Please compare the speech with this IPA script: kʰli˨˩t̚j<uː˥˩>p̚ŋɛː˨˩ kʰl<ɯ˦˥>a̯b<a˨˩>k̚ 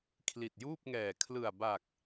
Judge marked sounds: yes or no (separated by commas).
yes, no, yes